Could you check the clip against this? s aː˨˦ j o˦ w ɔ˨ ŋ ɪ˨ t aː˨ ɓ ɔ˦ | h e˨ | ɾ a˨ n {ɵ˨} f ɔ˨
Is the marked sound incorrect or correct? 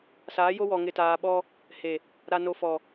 incorrect